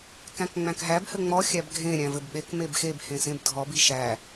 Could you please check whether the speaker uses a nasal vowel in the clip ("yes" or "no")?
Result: yes